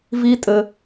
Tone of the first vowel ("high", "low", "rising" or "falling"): high